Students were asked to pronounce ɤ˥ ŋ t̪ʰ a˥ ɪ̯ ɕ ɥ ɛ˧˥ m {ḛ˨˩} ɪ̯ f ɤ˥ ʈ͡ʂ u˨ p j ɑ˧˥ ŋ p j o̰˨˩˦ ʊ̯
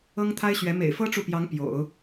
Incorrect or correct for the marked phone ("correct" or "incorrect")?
correct